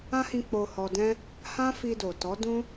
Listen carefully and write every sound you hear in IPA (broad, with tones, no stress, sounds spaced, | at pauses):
ã˦ h ĩ˧ k͡p o˧ h ɔ˧ d ɛ̃˦ | h ã˦ f i˧ d o˨ t ɔ˨˦ d ũ˦